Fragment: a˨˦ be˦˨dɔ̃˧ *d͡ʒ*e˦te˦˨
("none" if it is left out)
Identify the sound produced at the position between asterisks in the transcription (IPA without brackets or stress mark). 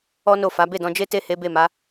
d͡ʒ